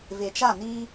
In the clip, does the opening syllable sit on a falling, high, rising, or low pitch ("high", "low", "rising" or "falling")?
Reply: low